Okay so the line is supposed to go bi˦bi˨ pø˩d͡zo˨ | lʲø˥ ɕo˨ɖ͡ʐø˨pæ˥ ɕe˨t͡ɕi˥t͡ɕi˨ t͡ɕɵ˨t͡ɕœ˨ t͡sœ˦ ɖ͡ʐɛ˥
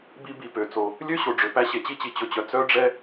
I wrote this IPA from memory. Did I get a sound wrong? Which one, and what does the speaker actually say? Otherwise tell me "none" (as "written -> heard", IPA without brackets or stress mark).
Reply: d͡z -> t͡s